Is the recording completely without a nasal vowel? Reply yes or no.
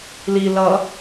yes